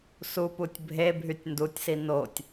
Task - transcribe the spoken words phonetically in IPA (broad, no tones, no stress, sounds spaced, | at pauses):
s u p u tʲ bʱ e bʱ y tʲ n d u tʲ s i n o tʲ